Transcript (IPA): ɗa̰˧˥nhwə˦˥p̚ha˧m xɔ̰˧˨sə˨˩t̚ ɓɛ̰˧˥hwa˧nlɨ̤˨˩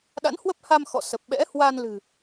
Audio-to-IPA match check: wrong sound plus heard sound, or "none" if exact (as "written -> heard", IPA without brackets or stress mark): t̚ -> p̚